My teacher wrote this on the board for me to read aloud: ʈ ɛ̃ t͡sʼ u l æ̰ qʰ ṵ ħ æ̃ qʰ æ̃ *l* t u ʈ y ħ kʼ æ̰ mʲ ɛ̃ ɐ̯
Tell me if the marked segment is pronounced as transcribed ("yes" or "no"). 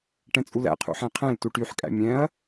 yes